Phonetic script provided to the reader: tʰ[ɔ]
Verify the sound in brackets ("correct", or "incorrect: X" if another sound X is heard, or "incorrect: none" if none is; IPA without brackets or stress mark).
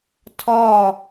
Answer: correct